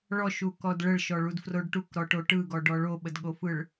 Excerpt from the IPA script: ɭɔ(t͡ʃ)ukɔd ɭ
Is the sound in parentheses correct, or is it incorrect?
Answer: incorrect